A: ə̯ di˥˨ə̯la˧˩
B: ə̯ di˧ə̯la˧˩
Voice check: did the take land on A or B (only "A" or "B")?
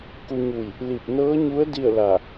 A